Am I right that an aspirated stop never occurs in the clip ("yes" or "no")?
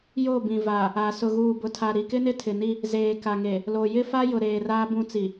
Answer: no